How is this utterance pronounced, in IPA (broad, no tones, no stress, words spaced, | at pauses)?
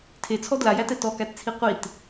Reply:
tʰet͡sʰɔ dlajætɛ tɔkætt͡sʰi qʷit